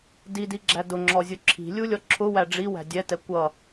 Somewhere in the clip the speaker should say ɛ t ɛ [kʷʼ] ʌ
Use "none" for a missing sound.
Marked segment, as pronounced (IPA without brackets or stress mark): kʷ